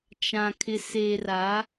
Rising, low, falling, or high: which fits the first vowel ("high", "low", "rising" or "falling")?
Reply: low